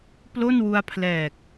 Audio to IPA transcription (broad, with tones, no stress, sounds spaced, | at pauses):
p l o˥˩ n w u˧ a̯ pʰ l ɛː˨˩ k̚